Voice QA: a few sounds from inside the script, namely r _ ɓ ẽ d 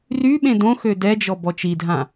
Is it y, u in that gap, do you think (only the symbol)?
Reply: y